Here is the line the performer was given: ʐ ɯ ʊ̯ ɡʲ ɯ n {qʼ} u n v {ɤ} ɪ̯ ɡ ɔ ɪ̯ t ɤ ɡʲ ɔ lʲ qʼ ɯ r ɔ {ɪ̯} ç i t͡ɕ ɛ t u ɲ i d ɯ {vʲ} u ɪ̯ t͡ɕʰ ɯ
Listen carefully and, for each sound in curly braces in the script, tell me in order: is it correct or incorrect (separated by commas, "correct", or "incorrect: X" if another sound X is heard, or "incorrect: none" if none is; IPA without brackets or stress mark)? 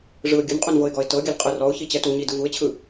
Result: correct, correct, incorrect: ʊ̯, incorrect: v